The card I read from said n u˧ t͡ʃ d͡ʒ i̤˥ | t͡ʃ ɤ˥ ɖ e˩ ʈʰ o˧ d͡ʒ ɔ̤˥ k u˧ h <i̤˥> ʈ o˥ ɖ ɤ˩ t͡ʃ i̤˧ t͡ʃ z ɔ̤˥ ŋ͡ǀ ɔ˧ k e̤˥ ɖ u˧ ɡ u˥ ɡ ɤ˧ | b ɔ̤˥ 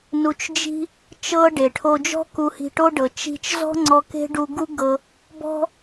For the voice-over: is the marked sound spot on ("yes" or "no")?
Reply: no